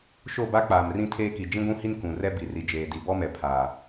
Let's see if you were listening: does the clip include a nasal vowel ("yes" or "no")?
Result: yes